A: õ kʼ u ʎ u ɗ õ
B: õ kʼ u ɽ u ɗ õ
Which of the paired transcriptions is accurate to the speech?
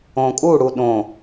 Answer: B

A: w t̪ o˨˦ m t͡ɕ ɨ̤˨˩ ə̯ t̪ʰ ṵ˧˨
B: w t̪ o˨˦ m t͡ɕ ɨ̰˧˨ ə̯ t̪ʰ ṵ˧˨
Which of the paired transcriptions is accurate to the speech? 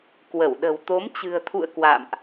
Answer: A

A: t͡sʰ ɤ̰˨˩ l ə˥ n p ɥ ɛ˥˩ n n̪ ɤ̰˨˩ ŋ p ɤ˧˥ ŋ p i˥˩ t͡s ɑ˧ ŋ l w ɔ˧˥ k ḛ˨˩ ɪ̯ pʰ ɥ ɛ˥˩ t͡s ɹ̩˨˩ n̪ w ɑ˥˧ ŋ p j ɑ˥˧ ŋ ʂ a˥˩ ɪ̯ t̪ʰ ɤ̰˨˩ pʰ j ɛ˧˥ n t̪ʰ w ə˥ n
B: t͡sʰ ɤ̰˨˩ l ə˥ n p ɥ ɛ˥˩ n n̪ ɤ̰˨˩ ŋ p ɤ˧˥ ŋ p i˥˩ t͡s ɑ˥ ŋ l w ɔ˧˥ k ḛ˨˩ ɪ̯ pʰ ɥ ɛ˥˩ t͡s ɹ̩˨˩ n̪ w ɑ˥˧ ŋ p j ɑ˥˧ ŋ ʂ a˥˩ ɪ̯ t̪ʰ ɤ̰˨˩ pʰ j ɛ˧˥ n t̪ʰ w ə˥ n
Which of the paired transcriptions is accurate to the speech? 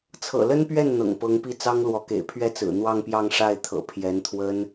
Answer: B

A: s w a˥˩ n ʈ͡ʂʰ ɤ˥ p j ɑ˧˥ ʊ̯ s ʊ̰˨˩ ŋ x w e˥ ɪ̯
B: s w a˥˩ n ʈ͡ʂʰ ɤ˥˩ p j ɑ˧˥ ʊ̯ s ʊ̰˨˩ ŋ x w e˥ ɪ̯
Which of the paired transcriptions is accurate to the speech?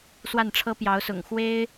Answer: A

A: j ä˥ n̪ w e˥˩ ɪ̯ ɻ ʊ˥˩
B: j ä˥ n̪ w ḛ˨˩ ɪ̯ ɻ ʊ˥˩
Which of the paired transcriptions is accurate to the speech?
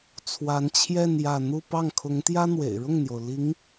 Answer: B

